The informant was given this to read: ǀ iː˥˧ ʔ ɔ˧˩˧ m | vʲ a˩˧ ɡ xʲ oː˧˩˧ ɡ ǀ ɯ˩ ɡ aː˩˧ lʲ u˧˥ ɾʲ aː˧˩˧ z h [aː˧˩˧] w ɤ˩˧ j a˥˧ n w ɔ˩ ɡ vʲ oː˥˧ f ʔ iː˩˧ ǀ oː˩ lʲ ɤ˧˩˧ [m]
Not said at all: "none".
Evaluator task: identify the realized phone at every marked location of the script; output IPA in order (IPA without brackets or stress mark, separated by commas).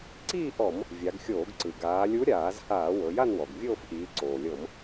aː˧˩˧, m